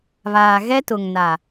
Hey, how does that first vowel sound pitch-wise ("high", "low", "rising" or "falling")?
low